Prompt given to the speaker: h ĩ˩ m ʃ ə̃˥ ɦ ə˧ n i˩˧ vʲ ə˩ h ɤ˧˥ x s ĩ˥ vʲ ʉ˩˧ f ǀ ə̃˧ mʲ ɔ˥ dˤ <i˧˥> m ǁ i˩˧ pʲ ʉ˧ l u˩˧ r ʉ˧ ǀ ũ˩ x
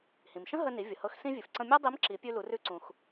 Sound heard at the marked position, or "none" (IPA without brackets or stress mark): i˧˥